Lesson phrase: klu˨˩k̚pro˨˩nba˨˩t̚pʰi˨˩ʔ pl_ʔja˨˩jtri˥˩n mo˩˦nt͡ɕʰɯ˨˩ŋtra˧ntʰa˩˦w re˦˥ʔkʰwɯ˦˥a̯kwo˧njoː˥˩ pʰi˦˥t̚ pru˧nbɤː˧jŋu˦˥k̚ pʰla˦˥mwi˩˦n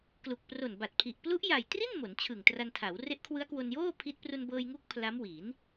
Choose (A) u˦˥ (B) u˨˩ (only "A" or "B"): A